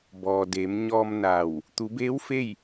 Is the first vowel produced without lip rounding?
no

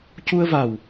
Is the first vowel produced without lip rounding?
no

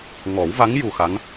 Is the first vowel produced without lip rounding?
no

